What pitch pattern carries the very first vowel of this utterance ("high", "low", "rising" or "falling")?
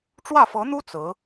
falling